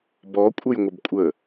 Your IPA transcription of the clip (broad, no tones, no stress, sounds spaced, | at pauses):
b ɔ kʷʼ ə j ŋʷ ə b kʷʼ ə